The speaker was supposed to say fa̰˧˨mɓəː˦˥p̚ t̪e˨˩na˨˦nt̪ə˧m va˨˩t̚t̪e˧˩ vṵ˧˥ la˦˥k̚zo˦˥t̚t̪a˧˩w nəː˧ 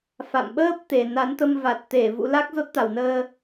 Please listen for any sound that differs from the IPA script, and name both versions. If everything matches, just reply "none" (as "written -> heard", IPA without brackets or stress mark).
none